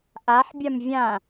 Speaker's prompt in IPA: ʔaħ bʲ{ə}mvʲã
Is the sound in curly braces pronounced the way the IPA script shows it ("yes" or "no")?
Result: no